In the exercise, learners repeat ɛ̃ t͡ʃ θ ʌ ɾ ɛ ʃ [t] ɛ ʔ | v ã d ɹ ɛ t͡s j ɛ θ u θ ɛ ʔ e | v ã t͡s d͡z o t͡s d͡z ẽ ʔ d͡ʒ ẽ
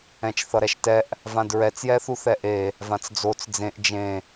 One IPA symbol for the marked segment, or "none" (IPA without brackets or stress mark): t